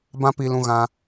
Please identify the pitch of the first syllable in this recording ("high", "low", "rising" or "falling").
high